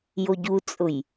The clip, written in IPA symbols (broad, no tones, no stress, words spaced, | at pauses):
joɟut͡sʼʊj